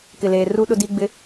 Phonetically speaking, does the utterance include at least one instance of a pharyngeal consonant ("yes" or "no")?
no